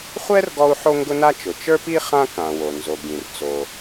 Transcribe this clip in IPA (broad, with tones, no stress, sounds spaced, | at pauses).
χʷ ɛ˥ r ɡ ɔ˥ u̯ ħ o˥ ŋ ɡ ʊ˥ n a˥ t͡ʃ ʊ˩ t͡ʃ ə˞˥ p i˥ χ ã˥ k ã˩ w o˩ n z o˩ ɡ ĩ˩ r t͡s o˩